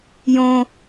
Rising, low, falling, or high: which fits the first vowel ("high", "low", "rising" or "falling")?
high